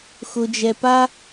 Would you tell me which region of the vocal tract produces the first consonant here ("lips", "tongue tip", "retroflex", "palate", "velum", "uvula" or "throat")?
velum